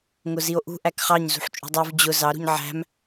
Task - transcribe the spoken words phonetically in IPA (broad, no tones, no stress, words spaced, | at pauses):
ŋʊzio̯ʔṳ ʔækχɑɲ zṳħt͡ʃʼṳdˤuv d͡ʑʊ zɑ ɾṳɲʕæ̤m